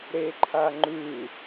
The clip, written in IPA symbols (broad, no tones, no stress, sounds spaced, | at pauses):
ɾ e ǃʰ a ŋ͡ǃ ʉ